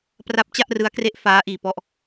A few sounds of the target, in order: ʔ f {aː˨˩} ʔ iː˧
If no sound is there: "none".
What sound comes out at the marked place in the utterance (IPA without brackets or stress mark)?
aː˦˥